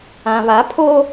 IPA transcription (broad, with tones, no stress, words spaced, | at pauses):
ã˨βa˨˦pʰo˦